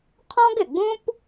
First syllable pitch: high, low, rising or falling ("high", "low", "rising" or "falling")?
high